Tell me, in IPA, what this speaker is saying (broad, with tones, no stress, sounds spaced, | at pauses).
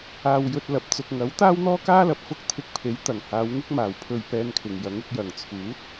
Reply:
aː˧ w j ɵ˧ t̚ l ɐ˨ p̚ t͡s ʊ˧ k̚ ŋ ɐ˨˥ w t̪ aː˥ w n̪ ɔː˥ k aː˥ l ɐ˨ p̚ f ʊ˥ k̚ t̪ʰ ɪ˧ k̚ pʰ e˨˥ j t̪ ɐ˨˩ ŋ h aː˨˧ w ŋ ɪ˥ k̚ m aː˨˩ w pʰ ɵ˧ ɥ p ɛː˧ n kʰ ɪ˨˩ ŋ j ɐ˨˥ ŋ ʊ˧ k̚ j ɐ˨˩ ŋ t͡sʰ uː˨˥ t̚